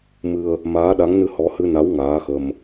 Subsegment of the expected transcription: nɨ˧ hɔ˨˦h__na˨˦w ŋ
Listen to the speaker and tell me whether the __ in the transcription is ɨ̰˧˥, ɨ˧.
ɨ˧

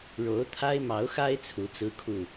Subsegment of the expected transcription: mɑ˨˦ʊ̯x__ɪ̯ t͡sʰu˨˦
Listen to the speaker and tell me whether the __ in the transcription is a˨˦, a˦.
a˦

